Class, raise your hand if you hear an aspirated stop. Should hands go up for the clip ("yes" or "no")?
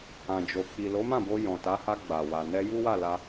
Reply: no